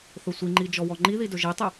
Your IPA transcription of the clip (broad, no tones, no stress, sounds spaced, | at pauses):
θ ɵ sʷ i ŋ͡ǃ i d͡ʒ ɔ w ɔ ŋ͡ǃ i ð i d ɵ ʒ i tˤ ɵ